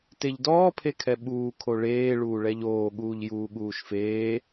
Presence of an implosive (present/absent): present